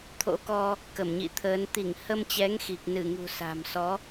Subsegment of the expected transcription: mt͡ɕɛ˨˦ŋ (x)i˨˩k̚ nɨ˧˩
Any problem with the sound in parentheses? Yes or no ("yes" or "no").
no